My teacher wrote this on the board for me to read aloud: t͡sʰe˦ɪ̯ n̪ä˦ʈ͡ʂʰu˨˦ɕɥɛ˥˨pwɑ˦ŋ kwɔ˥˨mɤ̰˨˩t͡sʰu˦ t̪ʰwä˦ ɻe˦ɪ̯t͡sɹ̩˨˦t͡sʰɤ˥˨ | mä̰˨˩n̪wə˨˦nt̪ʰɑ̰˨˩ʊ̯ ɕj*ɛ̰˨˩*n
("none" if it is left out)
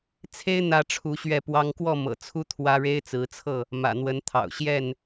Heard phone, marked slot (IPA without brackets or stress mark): ɛ˥˨